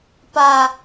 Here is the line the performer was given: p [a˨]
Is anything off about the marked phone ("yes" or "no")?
no